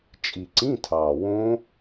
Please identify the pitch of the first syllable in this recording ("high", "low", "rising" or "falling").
low